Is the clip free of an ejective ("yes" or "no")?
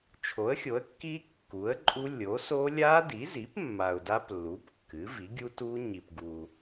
no